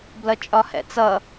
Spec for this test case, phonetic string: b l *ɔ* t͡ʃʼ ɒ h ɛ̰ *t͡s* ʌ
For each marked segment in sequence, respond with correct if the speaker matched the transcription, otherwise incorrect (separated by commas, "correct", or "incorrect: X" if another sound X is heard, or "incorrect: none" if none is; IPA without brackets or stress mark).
incorrect: ʌ, correct